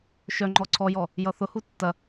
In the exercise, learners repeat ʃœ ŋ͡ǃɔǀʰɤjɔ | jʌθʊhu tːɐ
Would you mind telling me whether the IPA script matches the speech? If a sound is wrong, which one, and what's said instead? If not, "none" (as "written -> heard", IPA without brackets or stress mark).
ɤ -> ɔ